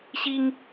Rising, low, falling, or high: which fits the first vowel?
high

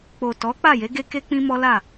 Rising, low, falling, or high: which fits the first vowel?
low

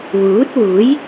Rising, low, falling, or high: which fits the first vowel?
rising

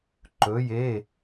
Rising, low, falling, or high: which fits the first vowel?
rising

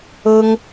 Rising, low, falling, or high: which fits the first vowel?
high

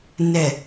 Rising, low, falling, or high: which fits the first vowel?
low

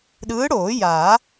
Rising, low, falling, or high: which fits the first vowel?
rising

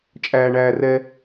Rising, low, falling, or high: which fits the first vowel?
low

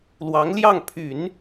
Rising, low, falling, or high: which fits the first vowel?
rising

